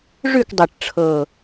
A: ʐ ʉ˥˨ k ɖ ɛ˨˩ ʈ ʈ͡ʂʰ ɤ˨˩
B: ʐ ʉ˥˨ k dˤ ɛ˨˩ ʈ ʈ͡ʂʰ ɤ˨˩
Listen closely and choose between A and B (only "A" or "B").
B